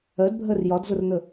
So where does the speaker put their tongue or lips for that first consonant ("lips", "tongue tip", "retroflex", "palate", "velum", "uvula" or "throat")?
tongue tip